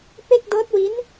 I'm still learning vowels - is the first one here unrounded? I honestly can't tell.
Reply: yes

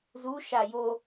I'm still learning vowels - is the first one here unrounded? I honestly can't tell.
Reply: no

